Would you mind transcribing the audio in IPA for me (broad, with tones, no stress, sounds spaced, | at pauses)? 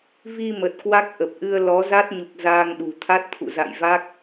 v i˧ m ə˨˩ t̚ k w a˦˥ k̚ ʔ ə˨˩ p̚ ʔ ɨ˧ ə̯ l ɔ˨˦ z a˦˥ t̚ ɲ u˨˩ k̚ z aː˧ ŋ ɗ ṳ˨˩ t̪ʰ a˦˥ t̚ t̪ʰ ṵ˧˨ z a̰˧˨ j v a˦˥ k̚